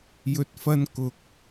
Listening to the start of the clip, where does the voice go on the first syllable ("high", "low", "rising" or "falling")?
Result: low